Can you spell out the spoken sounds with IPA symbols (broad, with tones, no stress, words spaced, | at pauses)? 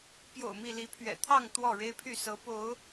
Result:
pjo̰˨˩ʊ̯ mi˥˨ li˨˦pʰɥɛ̰˨˩t̪ʰɑ˥˨ŋ t̪wɔ˥˨ɻe˦ɪ̯pʰy˥˨ sɤ˨˦ po˨˦ʊ̯